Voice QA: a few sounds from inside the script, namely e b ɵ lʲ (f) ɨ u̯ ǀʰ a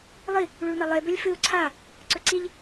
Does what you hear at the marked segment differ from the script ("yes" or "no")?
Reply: no